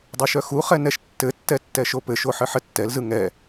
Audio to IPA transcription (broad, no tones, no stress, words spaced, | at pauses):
dˤoʃœxuχɛ nɛʃtːɘtːɛ tːɛʃopɘʃo ħɘħɘtːɛlzɯ ŋɛ